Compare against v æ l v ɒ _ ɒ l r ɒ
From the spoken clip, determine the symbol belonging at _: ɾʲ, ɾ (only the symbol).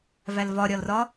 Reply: ɾʲ